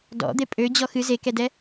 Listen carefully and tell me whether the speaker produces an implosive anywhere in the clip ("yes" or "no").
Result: no